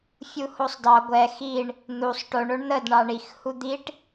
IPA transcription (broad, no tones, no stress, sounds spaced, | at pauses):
fʲ u h o sˤ d ɑ ɡʷ ɛ x i ɳ | n̪ u sˤ ʈ o ɳ o ɳ n̪ ə d ɳ ɑ ɳ i x h u d̪ i ʈ